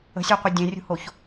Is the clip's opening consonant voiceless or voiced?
voiceless